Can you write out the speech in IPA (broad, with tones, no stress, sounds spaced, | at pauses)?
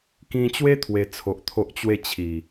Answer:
k ĩ˧ t͡ɕ w e˦ t̪ʰ w e˧ t͡sʰ o˨ ʔ t̪ʰ o˦ ʔ t͡ɕ w e˥˧ t͡ɕʰ i˨˩